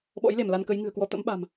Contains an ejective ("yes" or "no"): no